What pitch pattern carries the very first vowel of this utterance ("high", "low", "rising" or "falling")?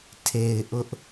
low